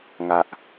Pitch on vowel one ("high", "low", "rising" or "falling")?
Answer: low